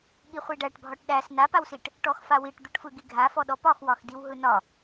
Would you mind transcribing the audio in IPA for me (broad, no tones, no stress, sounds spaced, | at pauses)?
ɠ i χʷ i ɖ æ ʈ bʱ ɒ ʈ ɗ æ s n a p a w s i ʈ | ʈ ɔ x f a w i ʈ d̪ ɯ ʈ f ɯ ɡ i ɡʱ a f ɔ ɗ ɔ p ɒ x w ɒ x d i w ɦ ɯ n ɒ